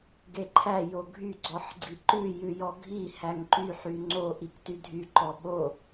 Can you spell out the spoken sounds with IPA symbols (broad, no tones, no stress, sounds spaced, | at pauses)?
ɡ e ǃʰ æ j o ɡʱ y ɡ͡ǀ ɔ ħ ɡ͡ǀ i ǃ ʉ j ʉ j ɔ ɡʱ i h æ ŋ ǃ y ħ y ŋ͡ǀ o ʔ i k t y dʱ y ǃ ɔ ɓ o